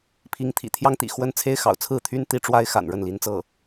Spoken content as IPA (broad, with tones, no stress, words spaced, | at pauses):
pʰi˧˥ŋt̪ʰḭ˨˩ t̪ʰjɑ˥ŋt̪ḭ˨˩ xwə˥˩nt͡sʰe˥ɪ̯ xɑ̰˨˩ʊ̯t͡sʰɹ̩˥˩t̪ʰy˥n t̪i˧˥ ʈ͡ʂwa˥ɪ̯ xa̰˨˩nɻə˥˩nli˧˥nt͡sɤ˥˩